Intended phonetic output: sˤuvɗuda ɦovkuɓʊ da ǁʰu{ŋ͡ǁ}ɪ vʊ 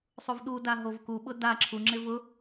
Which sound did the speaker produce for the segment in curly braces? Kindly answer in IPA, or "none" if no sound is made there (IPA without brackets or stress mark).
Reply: ŋ͡ǁ